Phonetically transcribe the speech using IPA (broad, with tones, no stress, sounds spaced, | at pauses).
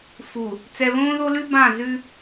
f u˨ | t͡s ɛ˨ β õː˦ ð o˦ l ʉ˦ b ã˦˨ z ʉ˦